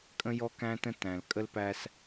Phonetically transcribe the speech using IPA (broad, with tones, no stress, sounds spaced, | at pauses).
kʼ ə̃˦ j ɔ˦ k æ̃˦ t ə̃˦ t æ̃˨ l kʼ ə˦ l p æ˦ s